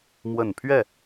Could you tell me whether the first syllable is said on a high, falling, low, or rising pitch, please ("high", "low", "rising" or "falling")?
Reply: falling